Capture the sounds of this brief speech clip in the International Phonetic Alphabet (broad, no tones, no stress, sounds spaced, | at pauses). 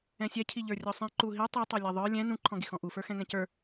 ɛ̃ sʲ ɛ cʰ i ʎ ə˞ rʲ ɔ sˤ ɛ̃ ǃ u ɦ i tˤ ɛ tˤ ɤ lʲ ɛ ðˤ ə˞ lʲ ɛ̃ n ũ ǃʰ ɔ̃ ɡ i x ɔ̃ ʔ u f ə˞ x ɛ̃ ŋ ɛ̃ c ə˞